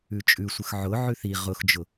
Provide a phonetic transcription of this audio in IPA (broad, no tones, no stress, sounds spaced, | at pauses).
ʉ t͡ʃʼ ʉ sʷ ə x ʕ ʊ ʕ ʉ θ i ʁ ʊ x d͡ʒ ʊ